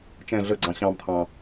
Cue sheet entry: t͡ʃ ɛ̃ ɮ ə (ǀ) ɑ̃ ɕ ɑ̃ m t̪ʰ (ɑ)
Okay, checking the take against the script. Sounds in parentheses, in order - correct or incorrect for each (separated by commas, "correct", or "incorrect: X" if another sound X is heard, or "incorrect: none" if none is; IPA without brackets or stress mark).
incorrect: ɡ͡ǀ, incorrect: ɑ̃